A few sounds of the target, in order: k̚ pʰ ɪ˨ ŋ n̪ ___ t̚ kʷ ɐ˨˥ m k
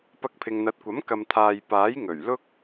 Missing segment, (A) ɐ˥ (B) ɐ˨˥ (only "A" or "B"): B